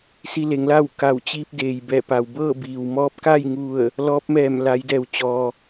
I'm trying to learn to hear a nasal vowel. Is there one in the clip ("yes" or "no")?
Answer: no